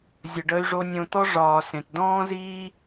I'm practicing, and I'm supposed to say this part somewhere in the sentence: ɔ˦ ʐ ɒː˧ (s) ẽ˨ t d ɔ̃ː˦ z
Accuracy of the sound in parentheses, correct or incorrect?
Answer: correct